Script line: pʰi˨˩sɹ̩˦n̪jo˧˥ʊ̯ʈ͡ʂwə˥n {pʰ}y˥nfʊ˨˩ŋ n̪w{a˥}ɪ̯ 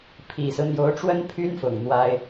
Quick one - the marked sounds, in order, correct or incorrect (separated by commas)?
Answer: correct, correct